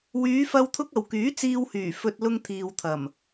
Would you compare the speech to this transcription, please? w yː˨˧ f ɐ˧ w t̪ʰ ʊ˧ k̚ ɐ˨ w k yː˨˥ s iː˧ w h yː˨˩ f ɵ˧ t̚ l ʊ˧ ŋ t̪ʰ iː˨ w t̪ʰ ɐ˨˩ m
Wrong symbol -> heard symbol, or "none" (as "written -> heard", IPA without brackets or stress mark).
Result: s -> t͡s